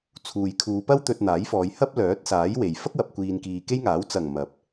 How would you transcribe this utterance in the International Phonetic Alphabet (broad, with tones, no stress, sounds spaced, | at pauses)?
t͡sʰ uː˨ j kʰ uː˨˧ p ɐ˥ w t̪ ɵ˧ t̚ n̪ aː˨˥ j f ɔː˨˧ j h ɐ˥ p̚ l œː˨˥ t̚ s aː˨˥ j w e˨ j f ɐ˥ k̚ w ɐ˨ p̚ kʷ iː˨ n k iː˨ k e˥ j ŋ aː˨˥ w t͡s ɐ˨˩ ŋ m ɐ˨˥ p̚